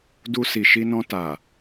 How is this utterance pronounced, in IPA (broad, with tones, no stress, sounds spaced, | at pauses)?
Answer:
d u˧ s i˨ ʃ i˧ n ɔ̃˧ t a˨